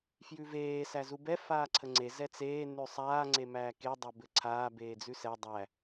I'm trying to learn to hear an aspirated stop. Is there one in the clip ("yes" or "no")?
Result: yes